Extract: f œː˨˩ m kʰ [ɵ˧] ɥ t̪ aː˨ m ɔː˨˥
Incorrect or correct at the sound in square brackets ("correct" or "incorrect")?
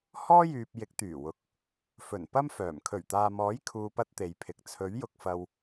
incorrect